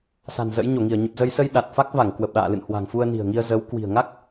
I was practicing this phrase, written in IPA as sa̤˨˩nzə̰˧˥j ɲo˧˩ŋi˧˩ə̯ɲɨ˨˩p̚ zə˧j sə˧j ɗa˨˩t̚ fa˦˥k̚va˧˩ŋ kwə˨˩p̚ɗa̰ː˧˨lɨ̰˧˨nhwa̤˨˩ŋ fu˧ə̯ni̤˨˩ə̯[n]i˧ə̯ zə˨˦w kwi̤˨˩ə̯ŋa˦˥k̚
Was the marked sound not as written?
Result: yes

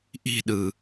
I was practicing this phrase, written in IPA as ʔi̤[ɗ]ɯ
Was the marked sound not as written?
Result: no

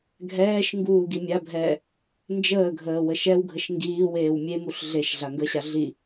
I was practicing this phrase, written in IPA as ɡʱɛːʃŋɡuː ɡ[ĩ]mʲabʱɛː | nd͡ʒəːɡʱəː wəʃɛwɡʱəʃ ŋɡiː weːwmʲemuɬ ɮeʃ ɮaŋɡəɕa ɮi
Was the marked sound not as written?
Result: yes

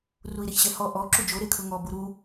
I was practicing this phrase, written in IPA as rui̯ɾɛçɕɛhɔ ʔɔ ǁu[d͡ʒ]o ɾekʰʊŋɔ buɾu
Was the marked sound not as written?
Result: no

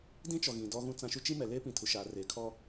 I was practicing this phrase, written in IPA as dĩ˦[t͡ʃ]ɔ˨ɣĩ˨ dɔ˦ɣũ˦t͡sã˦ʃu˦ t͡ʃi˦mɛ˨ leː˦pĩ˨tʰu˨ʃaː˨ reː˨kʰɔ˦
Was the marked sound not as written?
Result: no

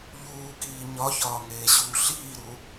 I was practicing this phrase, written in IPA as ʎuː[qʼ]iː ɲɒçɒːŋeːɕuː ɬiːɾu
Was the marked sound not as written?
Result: yes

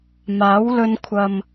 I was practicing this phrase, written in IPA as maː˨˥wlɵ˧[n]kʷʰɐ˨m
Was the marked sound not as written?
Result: no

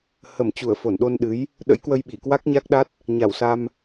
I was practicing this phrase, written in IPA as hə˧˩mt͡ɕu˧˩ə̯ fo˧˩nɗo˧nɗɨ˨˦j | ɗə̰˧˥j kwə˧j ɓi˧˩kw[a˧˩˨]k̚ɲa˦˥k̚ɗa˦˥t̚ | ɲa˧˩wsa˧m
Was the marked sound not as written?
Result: yes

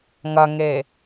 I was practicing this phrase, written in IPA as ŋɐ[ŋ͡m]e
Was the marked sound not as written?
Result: yes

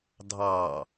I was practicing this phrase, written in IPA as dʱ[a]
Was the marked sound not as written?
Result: yes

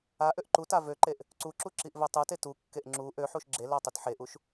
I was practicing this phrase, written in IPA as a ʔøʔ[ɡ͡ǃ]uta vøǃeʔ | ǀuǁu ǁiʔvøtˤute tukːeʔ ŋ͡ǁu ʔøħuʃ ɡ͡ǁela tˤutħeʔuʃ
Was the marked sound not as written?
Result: yes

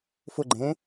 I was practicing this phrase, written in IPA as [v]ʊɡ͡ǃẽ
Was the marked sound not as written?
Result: yes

